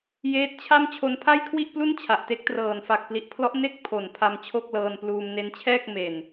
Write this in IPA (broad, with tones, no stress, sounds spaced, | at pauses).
j eː˦˥ t̚ t͡ɕʰ a˥˩ m t͡ɕʰ o˧ n pʰ a˥˩ j kʰ w i˥˩ ʔ p l u˥˩ n t͡ɕʰ a˨˩ ʔ t e˦˥ k̚ t r ɤː˨˩ n f a˨˩ k̚ p l i˨˩ ʔ pʰ l ɔ˦˥ ʔ n e˥˩ k̚ pʰ o˨˩ n pʰ a˧ m t͡ɕʰ o˥˩ k̚ l ɤː˧ n p l uː˧ m n e˦˥ n t͡ɕʰ ɛː˥˩ k̚ m e˨˩ n